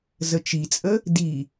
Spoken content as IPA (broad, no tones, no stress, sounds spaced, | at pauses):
z ə t͡ʃ i t͡sʼ ə | d i